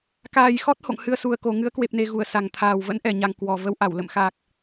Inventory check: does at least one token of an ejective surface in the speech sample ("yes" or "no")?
no